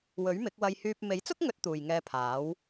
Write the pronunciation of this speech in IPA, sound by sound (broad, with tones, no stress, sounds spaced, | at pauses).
w ɵ˨˥ ɥ m ɪ˨˥ k̚ w ɐ˧ j h yː˧ p̚ m e˨˥ j t͡s ʊ˥ k̚ ŋ ɵ˨˥ t̚ t̪ uː˨ j ŋ ɛː˧ pʰ aː˨˥ w